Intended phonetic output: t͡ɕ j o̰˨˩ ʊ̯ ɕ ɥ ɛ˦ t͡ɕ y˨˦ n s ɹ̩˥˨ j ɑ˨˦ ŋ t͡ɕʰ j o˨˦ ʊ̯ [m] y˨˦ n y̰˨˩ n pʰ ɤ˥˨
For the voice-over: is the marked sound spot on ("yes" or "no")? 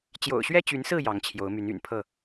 yes